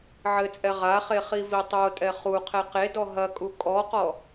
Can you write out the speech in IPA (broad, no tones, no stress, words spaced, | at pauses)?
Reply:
ʕɘt͡sʼɛ ʁaχe χivitˤotʼɛ χu qʰɛqedɔ ɦɐkʼu kʼɔqɔ